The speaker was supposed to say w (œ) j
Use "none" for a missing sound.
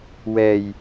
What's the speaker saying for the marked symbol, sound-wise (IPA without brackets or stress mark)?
ɛ